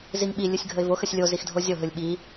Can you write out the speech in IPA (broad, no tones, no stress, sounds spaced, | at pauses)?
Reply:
z i ŋ ɓ i lʲ ɯ sʲ ɡʱ ə ɪ̯ v o x ə sʲ lʲ o z i x dʱ o zʲ o ɦ ɯ lʲ ɓ i